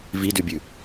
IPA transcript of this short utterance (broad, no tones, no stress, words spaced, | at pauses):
vidʉbʲʉ